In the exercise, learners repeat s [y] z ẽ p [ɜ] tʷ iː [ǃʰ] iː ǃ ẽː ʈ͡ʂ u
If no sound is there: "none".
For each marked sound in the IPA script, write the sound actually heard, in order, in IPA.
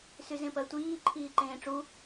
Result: y, ɜ, ǃʰ

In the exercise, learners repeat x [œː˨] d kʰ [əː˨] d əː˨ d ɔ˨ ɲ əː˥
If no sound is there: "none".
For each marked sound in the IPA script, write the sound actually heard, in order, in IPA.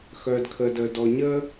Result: œː˨, əː˨

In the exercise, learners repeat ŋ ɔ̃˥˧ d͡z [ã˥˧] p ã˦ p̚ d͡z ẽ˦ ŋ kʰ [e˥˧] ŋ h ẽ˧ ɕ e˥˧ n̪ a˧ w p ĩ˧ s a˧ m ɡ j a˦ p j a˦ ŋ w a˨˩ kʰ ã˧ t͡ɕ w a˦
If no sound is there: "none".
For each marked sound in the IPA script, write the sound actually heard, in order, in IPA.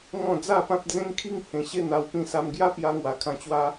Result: a˥˧, i˥˧

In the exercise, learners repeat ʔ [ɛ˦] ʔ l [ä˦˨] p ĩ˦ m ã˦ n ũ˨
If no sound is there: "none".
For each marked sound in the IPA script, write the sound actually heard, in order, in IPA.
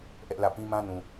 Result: ɛ˦, ä˦˨

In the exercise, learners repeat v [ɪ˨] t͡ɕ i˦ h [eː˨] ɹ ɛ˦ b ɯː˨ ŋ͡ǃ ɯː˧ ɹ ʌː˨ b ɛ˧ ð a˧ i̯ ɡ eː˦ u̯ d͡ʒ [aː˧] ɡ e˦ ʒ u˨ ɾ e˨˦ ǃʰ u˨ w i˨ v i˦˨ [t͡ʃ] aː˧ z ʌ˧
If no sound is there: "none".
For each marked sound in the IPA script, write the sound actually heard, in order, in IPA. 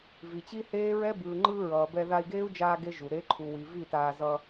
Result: i˨, eː˦, aː˧, t

